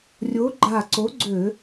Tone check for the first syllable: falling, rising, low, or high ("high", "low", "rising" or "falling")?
rising